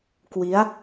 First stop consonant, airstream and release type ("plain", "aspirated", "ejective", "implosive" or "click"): plain